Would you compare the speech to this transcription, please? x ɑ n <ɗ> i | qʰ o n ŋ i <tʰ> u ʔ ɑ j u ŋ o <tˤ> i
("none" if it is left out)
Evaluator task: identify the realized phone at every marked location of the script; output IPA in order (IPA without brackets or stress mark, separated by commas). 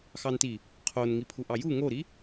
t, pʰ, ɾ